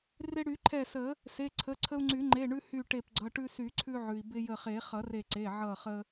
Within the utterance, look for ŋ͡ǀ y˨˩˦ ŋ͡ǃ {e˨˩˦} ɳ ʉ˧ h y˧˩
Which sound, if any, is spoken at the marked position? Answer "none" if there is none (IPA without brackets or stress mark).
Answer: e˩˧˩